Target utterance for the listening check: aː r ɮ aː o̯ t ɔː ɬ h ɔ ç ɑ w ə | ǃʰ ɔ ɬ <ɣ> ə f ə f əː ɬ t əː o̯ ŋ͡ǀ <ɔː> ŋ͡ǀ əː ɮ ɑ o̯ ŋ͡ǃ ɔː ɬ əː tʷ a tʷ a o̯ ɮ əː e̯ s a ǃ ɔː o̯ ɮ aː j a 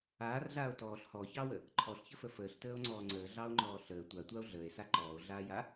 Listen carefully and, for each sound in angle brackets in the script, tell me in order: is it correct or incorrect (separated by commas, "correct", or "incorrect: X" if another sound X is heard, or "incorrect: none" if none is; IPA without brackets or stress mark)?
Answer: incorrect: ç, correct